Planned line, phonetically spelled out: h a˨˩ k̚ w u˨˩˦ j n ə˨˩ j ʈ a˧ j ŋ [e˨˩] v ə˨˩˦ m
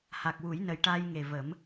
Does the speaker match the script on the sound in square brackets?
yes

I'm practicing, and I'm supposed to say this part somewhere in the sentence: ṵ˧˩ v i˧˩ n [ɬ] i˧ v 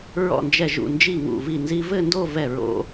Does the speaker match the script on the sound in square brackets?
no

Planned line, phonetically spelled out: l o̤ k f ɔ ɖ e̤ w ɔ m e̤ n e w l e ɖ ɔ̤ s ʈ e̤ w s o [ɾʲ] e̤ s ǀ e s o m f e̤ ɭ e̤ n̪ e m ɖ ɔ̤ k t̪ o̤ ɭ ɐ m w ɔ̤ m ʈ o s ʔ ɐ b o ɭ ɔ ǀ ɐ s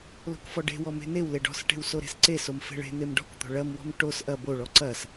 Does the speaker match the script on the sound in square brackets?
no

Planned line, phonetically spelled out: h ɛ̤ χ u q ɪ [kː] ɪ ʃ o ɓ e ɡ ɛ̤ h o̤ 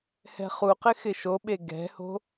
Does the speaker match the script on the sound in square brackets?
no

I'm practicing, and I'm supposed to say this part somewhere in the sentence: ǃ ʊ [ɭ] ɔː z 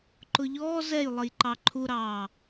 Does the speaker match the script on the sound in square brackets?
no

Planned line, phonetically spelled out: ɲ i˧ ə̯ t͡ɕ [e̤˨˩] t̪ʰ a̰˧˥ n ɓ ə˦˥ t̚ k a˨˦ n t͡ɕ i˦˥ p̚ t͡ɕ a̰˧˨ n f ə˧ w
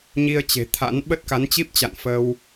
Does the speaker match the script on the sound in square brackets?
yes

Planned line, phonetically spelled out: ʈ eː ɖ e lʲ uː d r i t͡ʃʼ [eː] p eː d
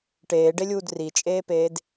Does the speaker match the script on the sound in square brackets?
yes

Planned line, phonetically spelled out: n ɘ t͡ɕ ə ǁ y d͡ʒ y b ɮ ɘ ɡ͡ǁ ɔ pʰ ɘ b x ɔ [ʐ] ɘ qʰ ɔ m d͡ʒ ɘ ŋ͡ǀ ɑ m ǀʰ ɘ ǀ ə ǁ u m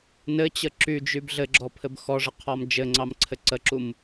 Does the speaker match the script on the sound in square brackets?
yes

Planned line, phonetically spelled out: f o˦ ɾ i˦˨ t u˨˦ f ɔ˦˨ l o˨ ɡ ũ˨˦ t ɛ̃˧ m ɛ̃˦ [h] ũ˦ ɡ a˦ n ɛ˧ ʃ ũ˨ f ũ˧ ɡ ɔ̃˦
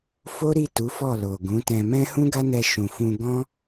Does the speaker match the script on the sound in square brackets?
yes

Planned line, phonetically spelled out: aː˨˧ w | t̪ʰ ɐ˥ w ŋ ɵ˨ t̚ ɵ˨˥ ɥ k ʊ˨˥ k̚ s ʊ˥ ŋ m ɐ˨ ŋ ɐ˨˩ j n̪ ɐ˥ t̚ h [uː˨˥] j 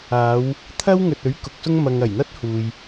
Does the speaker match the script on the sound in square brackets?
no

